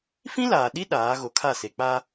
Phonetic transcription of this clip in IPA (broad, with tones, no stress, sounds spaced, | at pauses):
f ĩ˦ l aː˨ ɗ i˦ ɗ aː˨˦ ɣ o˨ kʰ a˦˨ s e˨ k͡p a˦